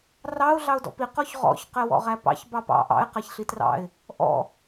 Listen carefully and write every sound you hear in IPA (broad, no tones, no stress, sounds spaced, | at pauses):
r ɑ ʊ̯ ɮ ɑ ʊ̯ d ɔ̰ p i q ɔ ç ʁ ɔ̰ ç q ɛ w ɔ̰ ʁ æ p ɑ̰ ç b ɑ p ɑ̰ ʔ ɑ̰ ɪ̯ q æ ç ɬ i t r ɑ̰ ɪ̯ | ʔ ɔ̰